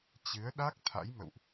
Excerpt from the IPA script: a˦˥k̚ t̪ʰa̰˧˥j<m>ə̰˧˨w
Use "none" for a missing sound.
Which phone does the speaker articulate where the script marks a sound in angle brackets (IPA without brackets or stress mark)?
m